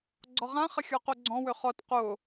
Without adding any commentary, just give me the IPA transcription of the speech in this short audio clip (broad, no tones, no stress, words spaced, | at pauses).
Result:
ɡ͡ǀɔʁã χəxʲɔqoɡ͡ǀɔ̃ wøχɔt qo